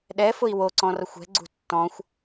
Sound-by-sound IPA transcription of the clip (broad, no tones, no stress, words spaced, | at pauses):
ɗɛfʊi̯ woǀɔ̃rʌxʷ ɛ̤ɡ͡ǀṳ tːɔ̃xʷ